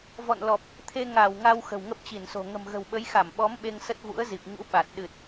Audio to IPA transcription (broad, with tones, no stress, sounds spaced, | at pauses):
v ɔ̰˧˨ n l ɔ˨˩ p̚ | t̪ʰ e˧ ŋ a˧˩ w ŋ a˧ w x ə̤˨˩ w ŋ ə˦˥ p̚ t͡ɕ i˧˩ n s o̤˨˩ ŋ ə̤˨˩ m ɣ ə̤˨˩ w ɓ ə˨˦ j x a˧˩ m ɓ ɔ˨˦ m ɓ e˧ ŋ s ə˦˥ t̚ v ṵ˧˥ ə̯ z i˨˩ p̚ ɲ ṵ˧˥ ɓ a˨˩ t̚ ɗ ɨ˨˩ t̚